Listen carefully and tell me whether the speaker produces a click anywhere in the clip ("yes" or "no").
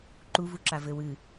yes